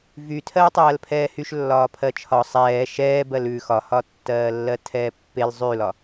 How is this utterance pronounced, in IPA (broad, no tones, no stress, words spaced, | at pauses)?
vy tʰɜːtˤɜːlpʰɛːhyʃ lːɒːpʰɜt͡ʃʰɒ sˤɛː ʃɛː bɜlʉ xɒhɒtːɜːlːɜ tʰɛːpːel zˤʉlɒ